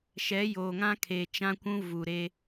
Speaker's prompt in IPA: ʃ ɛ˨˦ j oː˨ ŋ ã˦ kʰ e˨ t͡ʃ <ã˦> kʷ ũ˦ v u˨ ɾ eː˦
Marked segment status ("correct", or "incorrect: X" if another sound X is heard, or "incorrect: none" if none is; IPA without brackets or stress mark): correct